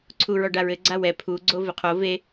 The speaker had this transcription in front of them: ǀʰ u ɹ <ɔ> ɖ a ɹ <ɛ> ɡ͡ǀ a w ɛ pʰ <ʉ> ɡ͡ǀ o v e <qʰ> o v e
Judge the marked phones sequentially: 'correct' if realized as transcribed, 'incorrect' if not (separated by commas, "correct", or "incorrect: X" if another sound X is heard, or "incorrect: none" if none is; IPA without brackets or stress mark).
correct, incorrect: ɘ, incorrect: u, correct